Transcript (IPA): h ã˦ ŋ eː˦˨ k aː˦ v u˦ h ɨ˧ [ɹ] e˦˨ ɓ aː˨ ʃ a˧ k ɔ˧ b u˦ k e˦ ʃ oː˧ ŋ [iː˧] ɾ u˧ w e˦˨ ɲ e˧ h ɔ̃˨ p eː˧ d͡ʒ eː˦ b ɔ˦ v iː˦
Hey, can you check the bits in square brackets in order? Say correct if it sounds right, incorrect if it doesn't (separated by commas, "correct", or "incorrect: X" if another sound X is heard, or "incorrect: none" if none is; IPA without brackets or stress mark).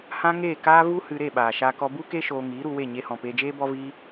incorrect: ɾ, incorrect: iː˨˦